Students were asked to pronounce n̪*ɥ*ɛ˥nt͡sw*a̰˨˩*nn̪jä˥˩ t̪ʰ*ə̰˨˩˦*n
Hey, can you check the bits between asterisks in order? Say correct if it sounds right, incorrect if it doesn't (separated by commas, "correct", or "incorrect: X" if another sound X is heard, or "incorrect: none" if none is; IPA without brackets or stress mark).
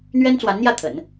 correct, incorrect: a˧˥, correct